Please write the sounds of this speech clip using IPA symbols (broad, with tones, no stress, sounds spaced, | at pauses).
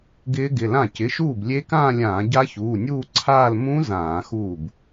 ɡ ɪː˦˥ ɡ ɪ˩˧˩ l ã˥˩ c ɪ˩˧˩ ʃ uː˥˩ b lʲ e˦˥ k ãː˥˧ lʲ ãː˧˩˧ ɟ a˦˥ ç uː˩˧˩ nʲ uː˥˧ ǀʰ aː˥˧ l m ũ˦˥ z ãː˧˩˧ x uː˥˩ b